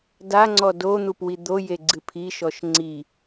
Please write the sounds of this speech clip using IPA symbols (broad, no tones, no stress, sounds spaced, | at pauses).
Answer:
d a ŋ͡ǀ ɔ d o n̪ u p w i d̪ o j e ɡ͡ǀ ɨ pʰ i ʃ ɔ ʃ ŋ͡ǀ i